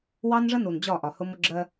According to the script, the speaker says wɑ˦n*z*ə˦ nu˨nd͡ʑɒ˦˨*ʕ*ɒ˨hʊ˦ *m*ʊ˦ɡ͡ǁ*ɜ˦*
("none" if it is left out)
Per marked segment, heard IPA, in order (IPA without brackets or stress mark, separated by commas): ʐ, ʔ, m, ɜ˦